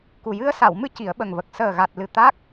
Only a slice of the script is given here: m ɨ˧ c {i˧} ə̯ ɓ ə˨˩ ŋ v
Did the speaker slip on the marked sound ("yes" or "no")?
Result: yes